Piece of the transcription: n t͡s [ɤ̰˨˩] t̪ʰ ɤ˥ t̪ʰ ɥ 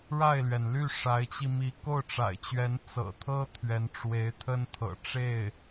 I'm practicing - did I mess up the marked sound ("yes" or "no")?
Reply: no